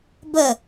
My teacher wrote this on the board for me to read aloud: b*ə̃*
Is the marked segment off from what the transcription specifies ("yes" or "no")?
yes